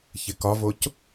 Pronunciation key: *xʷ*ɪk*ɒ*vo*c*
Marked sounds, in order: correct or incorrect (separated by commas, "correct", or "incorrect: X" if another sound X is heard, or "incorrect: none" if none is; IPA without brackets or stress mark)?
incorrect: ç, correct, correct